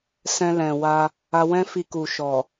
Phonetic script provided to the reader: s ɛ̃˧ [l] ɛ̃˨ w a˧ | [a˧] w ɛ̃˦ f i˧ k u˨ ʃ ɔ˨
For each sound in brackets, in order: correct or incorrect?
correct, correct

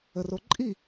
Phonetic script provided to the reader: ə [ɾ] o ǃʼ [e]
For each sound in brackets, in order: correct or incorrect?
incorrect: r, incorrect: i

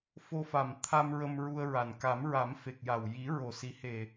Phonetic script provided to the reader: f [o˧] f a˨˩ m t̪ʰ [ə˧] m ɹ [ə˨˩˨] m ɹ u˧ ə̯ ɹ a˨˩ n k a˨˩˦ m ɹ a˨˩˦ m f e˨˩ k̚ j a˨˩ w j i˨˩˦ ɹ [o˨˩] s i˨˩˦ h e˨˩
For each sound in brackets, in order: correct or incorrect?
correct, incorrect: a˧, incorrect: ə˧, correct

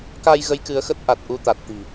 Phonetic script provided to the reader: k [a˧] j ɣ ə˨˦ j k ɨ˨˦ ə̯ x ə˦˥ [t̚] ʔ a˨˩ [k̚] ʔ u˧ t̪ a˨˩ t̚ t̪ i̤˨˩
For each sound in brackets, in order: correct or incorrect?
correct, correct, incorrect: t̚

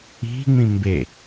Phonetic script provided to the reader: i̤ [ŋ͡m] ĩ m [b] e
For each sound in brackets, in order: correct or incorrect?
correct, correct

